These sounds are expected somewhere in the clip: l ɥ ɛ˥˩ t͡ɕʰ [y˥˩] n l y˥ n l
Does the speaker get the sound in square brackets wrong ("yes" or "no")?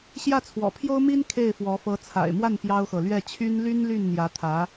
yes